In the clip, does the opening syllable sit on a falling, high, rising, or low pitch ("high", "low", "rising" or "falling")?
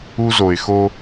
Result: high